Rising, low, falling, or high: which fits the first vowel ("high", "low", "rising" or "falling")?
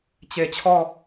low